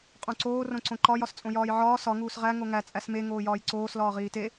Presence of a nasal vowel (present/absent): present